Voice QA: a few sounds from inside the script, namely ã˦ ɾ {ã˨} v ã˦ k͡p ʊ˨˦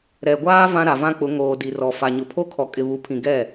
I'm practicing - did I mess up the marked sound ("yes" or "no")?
yes